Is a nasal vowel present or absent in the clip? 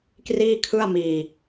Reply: absent